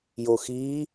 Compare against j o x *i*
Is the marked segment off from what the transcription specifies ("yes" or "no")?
no